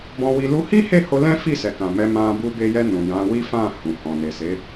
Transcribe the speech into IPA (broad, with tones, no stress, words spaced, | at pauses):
bɔ̃˧wi˧ lu˧hi˦he˦˨ho˧ lɛ̃˦fi˦˨sɛ˨kã˨ mɛ˧mã˧ bu˧be˧jɛ˧ nũ˨jã˨˦wi˦fã˦˨ hũ˨ hɔ̃˨ne˨se˨˦